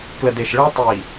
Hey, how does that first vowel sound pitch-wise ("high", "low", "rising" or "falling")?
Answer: low